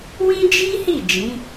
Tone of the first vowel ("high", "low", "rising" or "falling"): high